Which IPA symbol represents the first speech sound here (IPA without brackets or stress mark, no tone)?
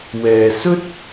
w